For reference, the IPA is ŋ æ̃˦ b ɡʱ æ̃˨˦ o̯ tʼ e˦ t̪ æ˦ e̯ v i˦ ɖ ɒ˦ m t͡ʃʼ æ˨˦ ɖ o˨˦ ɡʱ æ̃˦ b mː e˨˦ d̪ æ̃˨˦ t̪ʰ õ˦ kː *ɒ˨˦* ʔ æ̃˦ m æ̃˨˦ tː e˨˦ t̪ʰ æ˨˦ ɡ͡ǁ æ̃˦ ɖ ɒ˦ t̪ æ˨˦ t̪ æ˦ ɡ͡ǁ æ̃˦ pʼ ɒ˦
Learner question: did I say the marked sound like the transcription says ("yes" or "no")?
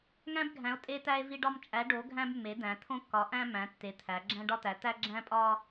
yes